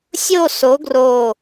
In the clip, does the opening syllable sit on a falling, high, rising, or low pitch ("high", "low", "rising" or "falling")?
falling